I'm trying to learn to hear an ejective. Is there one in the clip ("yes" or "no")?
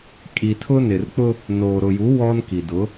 yes